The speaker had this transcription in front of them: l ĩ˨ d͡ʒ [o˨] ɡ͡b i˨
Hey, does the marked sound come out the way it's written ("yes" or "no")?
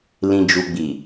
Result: no